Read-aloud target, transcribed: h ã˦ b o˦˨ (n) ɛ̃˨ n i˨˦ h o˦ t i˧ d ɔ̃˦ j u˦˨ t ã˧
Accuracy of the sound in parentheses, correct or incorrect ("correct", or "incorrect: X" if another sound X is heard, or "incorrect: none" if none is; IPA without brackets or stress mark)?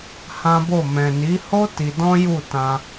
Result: incorrect: m